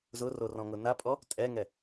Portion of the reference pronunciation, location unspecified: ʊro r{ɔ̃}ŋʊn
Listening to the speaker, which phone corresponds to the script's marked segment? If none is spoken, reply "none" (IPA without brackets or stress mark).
ɔ̃